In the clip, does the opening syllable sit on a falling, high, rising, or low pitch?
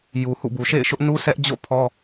low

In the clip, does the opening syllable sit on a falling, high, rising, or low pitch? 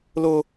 high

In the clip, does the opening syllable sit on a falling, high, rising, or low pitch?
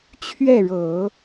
falling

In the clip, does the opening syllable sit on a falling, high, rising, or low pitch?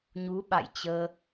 rising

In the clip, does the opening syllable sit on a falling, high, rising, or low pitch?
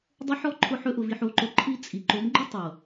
high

